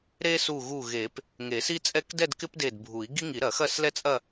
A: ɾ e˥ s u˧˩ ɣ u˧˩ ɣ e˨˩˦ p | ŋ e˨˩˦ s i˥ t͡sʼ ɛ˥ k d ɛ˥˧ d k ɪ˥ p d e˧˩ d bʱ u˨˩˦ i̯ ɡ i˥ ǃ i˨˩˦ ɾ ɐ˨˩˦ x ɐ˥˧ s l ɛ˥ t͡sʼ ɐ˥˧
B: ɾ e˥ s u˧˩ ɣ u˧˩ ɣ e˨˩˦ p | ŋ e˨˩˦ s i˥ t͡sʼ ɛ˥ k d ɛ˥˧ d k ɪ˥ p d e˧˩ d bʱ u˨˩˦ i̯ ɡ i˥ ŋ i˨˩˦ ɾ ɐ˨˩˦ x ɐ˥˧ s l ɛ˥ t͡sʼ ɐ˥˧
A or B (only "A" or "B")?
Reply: B